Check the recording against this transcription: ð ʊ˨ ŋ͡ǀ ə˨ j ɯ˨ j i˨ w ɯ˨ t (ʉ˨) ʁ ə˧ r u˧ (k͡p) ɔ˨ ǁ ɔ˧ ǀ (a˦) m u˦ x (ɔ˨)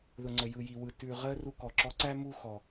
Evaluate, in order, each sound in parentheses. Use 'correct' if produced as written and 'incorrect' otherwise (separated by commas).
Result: correct, incorrect, incorrect, correct